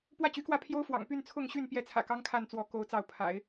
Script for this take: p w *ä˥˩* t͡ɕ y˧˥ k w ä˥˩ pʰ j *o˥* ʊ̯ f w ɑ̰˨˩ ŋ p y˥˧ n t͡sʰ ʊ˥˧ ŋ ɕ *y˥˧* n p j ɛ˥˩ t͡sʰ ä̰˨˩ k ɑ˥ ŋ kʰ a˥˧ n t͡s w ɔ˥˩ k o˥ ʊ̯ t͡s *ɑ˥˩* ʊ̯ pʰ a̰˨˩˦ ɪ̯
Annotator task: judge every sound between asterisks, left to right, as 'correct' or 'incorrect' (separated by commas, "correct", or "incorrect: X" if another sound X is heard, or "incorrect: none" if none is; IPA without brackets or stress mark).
correct, correct, correct, correct